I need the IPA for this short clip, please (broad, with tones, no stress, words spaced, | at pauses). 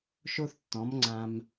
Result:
ʃo˥θtːɔ̃˩˥mŋ͡ǀã˧m